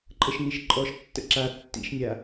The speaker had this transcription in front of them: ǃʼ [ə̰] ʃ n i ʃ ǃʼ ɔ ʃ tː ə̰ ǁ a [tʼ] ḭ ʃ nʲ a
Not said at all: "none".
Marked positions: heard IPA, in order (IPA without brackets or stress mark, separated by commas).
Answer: ə, tː